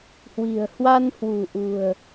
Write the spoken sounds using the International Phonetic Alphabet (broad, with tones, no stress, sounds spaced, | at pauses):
h w i̤˨˩ ə̯ h w a˧ n h w ṳ˨˩ ʔ ṳ˨˩ ə̯